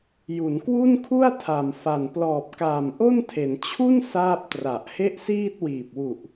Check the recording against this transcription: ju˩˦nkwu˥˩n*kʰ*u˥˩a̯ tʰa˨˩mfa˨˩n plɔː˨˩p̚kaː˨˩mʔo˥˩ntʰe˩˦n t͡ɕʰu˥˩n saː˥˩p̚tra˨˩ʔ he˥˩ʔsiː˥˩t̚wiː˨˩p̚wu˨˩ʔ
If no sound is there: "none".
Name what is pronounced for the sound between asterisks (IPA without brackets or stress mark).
kʰ